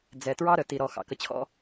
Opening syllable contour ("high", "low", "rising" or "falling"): low